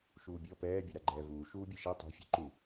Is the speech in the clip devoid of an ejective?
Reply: yes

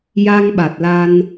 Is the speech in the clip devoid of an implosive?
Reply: no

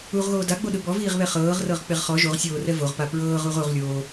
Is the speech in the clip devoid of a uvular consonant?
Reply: no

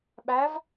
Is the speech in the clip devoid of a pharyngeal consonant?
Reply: yes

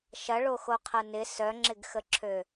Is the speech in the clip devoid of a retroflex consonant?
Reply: no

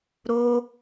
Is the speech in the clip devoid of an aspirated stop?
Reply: yes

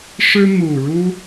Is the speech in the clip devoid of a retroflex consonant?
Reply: no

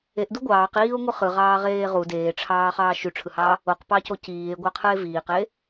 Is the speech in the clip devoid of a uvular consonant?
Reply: no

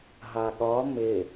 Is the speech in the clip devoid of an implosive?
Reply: no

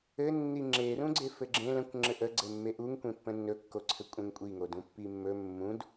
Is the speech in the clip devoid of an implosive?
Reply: yes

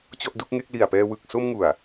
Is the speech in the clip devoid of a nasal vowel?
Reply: yes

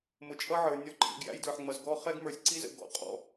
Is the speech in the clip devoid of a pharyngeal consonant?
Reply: no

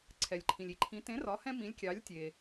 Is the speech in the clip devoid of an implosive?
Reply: yes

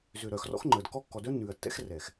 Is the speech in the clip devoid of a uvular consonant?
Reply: yes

